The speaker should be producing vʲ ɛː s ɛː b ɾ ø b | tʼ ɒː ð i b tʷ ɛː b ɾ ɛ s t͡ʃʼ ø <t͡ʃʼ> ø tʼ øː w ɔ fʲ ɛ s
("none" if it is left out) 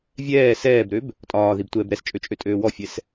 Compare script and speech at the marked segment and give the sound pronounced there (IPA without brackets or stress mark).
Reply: t͡ʃʼ